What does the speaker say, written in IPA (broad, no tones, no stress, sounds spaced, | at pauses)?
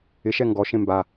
ɪ ʃ ɛ ŋ ɡ ɔ ʃ ẽ m b a